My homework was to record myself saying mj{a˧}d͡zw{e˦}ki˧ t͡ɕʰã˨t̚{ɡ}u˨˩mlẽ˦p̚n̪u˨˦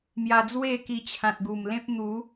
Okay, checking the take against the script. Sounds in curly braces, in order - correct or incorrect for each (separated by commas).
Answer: correct, incorrect, correct